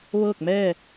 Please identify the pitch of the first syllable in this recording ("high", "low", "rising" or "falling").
falling